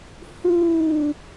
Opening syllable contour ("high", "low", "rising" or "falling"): falling